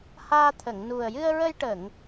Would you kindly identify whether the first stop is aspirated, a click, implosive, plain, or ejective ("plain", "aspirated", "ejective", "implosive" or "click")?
aspirated